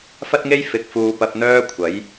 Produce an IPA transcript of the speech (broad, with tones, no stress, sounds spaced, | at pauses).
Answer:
f ɐ˥ t̚ ŋ e˥ j f ɪ˧ k̚ f uː˧ p ɐ˧ p̚ n̪ œː˥ kʷʰ ɐ˨˥ j